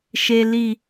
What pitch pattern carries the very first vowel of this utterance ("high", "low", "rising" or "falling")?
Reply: low